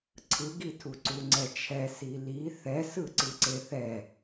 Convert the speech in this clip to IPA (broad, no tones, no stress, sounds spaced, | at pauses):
ǀʰ ɯ ɡ i tʰ u ǀ u ŋ͡ǀ ɛ t͡ʃʰ ɛ s i l i θ ɛ s ɯ ǀ ɯ ǀ e θ ɛ